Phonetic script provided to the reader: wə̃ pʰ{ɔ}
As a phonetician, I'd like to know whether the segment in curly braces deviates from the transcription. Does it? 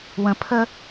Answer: yes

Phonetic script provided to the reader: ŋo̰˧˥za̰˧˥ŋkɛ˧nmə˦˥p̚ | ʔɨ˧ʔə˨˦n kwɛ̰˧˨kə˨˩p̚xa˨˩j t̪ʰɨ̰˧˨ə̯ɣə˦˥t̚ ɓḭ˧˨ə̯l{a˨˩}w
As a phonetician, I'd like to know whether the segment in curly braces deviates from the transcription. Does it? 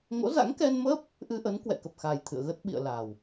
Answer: no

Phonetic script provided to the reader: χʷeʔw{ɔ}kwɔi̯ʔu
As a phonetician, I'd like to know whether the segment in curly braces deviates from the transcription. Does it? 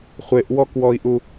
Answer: no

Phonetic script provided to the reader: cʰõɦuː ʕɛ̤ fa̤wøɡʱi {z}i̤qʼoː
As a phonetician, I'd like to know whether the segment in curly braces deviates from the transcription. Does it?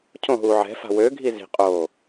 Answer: no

